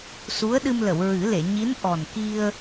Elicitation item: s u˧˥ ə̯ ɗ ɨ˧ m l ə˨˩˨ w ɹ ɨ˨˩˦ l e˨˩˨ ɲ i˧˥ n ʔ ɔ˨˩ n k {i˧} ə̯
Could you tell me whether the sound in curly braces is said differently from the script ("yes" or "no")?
no